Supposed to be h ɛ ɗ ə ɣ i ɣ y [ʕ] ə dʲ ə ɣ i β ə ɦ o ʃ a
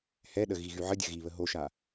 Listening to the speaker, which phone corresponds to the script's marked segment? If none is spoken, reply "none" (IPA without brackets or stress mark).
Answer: ʕ